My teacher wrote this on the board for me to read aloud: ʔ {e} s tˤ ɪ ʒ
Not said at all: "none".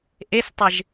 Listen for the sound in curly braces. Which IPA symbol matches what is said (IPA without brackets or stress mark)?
e